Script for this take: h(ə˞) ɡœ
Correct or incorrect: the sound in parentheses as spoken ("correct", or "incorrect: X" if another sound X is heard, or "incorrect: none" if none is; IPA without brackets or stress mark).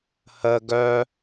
incorrect: ə